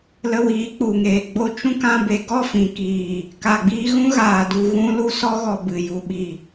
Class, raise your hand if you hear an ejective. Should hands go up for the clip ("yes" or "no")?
no